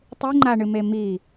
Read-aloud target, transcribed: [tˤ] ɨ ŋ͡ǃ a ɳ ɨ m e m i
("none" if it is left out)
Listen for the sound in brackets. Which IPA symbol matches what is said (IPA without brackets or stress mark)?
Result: tˤ